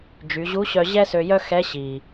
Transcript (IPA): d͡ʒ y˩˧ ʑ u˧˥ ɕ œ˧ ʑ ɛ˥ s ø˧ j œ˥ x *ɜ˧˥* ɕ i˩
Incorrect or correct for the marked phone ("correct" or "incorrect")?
incorrect